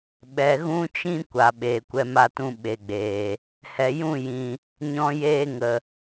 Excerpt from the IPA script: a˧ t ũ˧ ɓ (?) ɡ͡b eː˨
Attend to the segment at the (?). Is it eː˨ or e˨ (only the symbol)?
e˨